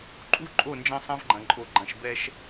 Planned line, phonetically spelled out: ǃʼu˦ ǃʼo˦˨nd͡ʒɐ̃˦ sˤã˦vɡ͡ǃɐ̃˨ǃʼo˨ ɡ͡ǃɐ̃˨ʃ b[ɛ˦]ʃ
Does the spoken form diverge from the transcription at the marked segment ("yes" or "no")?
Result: no